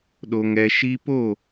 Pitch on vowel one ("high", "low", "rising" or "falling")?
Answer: high